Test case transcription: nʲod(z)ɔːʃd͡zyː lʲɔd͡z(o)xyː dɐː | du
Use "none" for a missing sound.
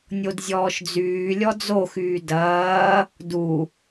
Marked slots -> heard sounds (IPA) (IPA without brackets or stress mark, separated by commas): zʲ, o